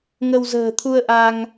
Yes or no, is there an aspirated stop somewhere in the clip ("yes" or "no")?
yes